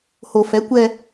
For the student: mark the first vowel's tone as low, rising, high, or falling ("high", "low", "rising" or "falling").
low